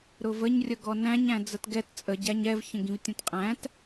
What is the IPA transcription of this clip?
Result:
ɾ ʊ v ə ɲ rʲ ə ɡ ɔ n æ̃ ɲ æ̃ d͡z ə t ɡ ɛ t t͡sʼ ə ɟ æ ɲ ɛ v ç ə̃ ɡ ĩ v tʲ ɛ̃ t qʼ æ̃ t

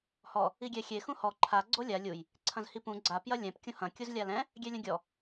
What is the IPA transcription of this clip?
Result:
h ɔ | i ɡʲ ɛ xʲ e x ũ h ɔ ǃʰ a ɡ͡ǀ o lʲ a lʲ u j | ǀʰ ɐ̃ z h i p ũ ɡ͡ǀ a p j ɐ lʲ ɛ̃ p kʲ ũ h ɐ̃ kʲ u z lʲ a l ɛ̃ | ɡʲ ɛ lʲ ɐ̃ ɡʲ ɔ

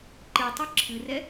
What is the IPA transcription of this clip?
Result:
ǃ ɨ tˤ ɨ ǁʰ ɨ r ɛ

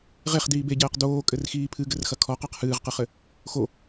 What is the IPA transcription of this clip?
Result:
ʁ e χ d iː b e ɟ ɛː q d oː kʼ ɘ r x iː pʰ ɨ ɡ ɘ r x ɐ kʰ ɔ q a q h ɨː ʁ q ɨ χ ɘ | x o

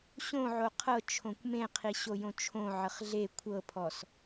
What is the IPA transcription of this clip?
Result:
ɕ õ ʕ o qʰ ɤ t͡ʃʰ õ kʷ m ẽ qʰ i ɕ o j õ t͡ʃʰ õ ʕ ə χ ɮ e kʷʰ ɤ pʰ ɔ s

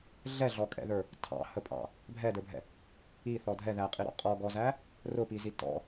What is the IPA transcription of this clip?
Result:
ɮ ɛ ɮ ɔ kʼ ɛ̰ ð ə˞ | tʰ ɑ̰ h ə pʼ ɑ̰ | bʱ ɛ d ə˞ bʱ ɛ̰ | i θ ɔ dʱ ɛ ð æ qʼ i ɾ ɔ̰ qʼ ɔ ɡ ɔ z æ | r ʊ p i z i t ɔ̰

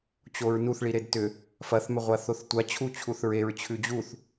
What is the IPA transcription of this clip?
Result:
t͡ɕ o ɹ n u θ ɭ i ɾ e d t ʏ | f ɐ θ m ʏ ʁʷ a θ o θ tʷ a t͡ɕʰ u t͡ɕʰ u θ ɹ e ɹ t͡ɕʰ ʉ d͡ʑ u θ

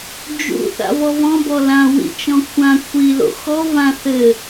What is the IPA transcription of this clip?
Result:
d͡ʒ ṵ θ a̰ v ɔ v ɔ̃ b ɔ l ã w ḭ t͡ʃ ɔ̃ kʷʰ ã kʷʰ i l o̰ x ɔ v ã θ ɘ

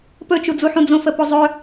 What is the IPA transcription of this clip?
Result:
p ɵ t͡ʃ u d͡z u ħ ũ d͡z õ f ə p o zˤ ɵ

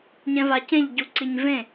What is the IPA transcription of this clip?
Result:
ɲ ɛ̃ v a c ẽ ʎ ɟ u ǀ i ɲ v ẽ

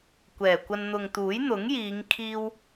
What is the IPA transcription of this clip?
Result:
kʷ ɛː˨˩ kʷ ɐ˧ n n̪ ʊ˨ ŋ t̪ uː˨˥ j n̪ ʊ˨˥ ŋ j iː˨˧ ŋ kʰ iː˧ w

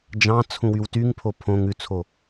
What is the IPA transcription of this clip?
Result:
d͡ʒ ɑ̃ t͡sʰ ũ w y w t y ŋ pʰ o pʰ õ ŋ ʉ t͡sʰ o

